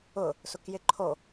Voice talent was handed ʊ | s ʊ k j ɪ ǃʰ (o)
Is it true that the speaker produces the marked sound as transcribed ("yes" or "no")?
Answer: yes